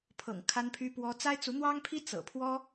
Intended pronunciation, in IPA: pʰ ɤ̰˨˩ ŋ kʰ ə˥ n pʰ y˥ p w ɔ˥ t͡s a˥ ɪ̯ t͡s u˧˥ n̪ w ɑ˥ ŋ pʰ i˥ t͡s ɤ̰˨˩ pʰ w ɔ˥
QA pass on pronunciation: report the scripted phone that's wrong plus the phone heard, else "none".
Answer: ə˥ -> a˥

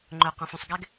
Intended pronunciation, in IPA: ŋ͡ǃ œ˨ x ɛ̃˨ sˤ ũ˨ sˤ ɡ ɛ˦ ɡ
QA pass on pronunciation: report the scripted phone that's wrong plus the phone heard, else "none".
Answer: x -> q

